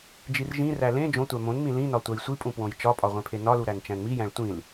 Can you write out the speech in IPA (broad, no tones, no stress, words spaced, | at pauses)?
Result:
d͡ʒirʒĩræ lẽ d͡ʒõtʷæ mõnmĩ lĩnɒ tʷæjsʷipʼũ pwõjt͡ʃɒpʼɒ ʁʷẽpʰenɒlu ɾænt͡ʃæ̃nmijæ̃ɭ tʷĩl